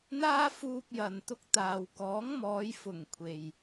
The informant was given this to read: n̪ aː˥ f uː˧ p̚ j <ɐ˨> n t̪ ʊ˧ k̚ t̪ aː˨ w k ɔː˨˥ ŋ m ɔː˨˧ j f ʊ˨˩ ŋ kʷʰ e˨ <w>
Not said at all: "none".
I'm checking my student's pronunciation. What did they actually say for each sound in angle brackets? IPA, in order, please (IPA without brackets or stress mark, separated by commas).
ɐ˨, j